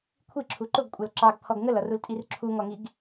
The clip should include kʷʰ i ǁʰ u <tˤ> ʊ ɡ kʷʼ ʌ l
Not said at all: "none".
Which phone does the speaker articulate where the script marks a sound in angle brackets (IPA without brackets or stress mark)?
ǃ